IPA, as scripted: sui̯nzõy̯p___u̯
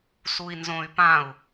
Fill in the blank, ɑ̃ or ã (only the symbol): ã